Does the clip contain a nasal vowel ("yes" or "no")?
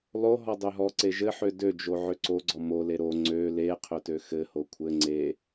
no